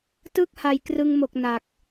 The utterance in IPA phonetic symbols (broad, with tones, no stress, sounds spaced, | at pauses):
t ɯ˥˩ k̚ h a˨˩ j k r ɯ˧ ŋ m o˨˩ k̚ n a˨˩ k̚